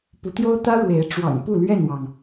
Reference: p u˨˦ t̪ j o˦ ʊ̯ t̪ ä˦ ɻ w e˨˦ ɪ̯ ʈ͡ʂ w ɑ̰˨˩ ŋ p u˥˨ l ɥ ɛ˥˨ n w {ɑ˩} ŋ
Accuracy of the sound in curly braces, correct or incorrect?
correct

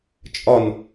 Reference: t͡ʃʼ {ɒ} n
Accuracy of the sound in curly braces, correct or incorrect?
correct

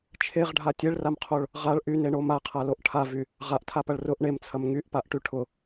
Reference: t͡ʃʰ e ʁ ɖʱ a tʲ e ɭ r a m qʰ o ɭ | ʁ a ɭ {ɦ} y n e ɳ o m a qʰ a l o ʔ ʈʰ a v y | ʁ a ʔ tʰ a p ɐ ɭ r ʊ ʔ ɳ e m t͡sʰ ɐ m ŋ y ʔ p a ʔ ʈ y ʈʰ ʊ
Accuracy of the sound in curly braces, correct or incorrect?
incorrect: ʔ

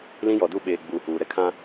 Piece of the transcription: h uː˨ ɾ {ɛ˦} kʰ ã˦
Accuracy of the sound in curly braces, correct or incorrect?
correct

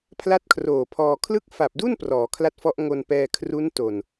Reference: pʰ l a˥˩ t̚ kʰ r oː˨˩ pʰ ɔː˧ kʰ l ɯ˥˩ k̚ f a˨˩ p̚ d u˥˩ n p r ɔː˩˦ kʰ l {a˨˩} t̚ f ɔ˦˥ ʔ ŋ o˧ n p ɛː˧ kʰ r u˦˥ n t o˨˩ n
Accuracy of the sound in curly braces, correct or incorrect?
incorrect: a˦˥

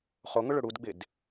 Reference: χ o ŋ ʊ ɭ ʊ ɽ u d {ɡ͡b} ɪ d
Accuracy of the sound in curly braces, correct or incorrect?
correct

